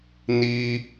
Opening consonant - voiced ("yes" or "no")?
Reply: yes